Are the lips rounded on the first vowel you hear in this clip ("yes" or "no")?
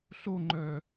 yes